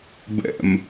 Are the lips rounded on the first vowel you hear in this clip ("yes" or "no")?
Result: no